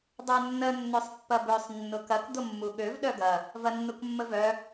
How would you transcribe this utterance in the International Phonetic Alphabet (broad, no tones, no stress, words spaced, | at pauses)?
dˤœnːə nːøsˤpːɐbøsˤ nːʊkɐk d̪ʊmːuɠøv ɗœɡɐ | vɐnːukmːəvœ